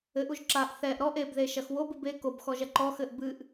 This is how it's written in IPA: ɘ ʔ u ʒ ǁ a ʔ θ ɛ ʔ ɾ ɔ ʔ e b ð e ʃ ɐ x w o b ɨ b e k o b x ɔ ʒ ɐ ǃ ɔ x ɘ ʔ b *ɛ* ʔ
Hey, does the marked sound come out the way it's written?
no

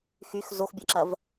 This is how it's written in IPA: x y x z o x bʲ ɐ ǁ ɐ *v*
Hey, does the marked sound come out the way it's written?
yes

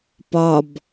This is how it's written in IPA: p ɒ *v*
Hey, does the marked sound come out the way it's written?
no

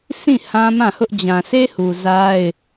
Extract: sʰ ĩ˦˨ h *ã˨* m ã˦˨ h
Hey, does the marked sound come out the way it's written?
no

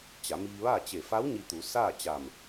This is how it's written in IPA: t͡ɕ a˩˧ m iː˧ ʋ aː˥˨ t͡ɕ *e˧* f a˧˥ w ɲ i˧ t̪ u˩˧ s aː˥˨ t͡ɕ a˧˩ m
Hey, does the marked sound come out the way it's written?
no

